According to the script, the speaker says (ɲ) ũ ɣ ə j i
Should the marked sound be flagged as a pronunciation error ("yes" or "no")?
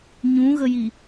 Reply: no